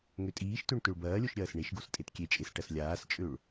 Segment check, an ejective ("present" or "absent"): present